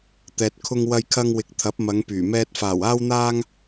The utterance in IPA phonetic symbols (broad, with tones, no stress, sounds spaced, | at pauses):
t̪ ɛː˨ t̚ kʰ ʊ˧ ŋ w ɐ˧ j kʰ ɐ˧ ŋ w ɪ˨˥ k̚ t̪ʰ ɐ˨˥ p̚ m ɐ˨˧ ŋ p yː˨˩ m ɛː˧ t̚ f aː˨˩ w aː˧ w n̪ aː˧ ŋ